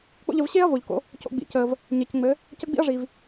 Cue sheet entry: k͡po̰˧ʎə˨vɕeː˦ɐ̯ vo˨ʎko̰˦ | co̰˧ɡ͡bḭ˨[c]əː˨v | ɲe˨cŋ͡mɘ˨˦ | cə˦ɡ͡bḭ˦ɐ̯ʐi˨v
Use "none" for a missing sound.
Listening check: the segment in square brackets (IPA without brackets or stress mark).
c